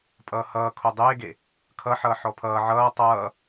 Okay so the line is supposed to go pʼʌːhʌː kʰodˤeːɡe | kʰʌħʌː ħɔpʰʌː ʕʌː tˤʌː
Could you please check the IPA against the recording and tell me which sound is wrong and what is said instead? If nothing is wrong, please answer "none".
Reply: none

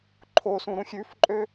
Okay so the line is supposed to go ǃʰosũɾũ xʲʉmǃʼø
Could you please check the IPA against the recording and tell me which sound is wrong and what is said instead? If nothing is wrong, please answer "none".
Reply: m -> f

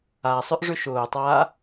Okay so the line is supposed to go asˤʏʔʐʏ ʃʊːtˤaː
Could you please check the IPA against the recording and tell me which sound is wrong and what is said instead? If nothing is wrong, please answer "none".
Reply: none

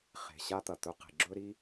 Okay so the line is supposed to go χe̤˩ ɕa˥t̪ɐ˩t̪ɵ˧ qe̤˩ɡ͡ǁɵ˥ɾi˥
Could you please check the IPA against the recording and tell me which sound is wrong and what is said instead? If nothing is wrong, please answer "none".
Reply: none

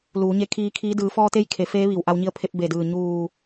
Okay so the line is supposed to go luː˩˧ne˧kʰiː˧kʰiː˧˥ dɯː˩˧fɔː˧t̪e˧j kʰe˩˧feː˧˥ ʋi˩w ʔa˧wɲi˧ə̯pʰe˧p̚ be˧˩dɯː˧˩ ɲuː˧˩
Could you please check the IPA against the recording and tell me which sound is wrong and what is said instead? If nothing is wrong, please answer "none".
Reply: n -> ɲ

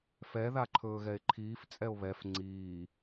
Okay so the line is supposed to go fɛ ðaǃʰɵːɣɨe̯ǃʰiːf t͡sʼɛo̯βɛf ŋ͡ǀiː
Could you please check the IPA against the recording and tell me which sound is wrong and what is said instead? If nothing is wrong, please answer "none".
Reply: ɨ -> ɛ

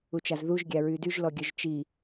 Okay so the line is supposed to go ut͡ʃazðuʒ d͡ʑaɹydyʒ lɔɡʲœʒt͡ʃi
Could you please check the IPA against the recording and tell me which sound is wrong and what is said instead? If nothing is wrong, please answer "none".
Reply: d͡ʑ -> ɡʲ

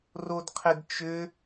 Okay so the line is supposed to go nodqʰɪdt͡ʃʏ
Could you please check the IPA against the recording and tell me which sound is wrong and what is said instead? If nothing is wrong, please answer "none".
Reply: n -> r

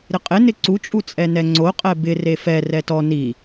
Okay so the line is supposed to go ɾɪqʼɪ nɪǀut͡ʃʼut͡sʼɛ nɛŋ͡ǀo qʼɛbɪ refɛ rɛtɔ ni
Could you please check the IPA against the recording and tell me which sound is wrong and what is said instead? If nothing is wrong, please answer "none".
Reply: none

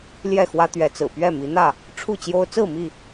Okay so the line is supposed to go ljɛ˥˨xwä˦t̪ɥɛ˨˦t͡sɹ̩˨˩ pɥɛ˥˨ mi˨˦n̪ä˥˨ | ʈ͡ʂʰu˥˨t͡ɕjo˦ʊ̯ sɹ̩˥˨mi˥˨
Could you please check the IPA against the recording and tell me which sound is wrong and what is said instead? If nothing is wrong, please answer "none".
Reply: s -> t͡s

